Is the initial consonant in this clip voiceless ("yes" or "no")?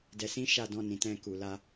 no